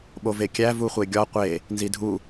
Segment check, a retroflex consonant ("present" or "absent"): absent